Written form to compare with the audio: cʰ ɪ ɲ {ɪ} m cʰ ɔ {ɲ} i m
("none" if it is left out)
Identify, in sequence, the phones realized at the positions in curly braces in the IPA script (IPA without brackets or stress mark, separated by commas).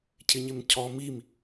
ɪ, m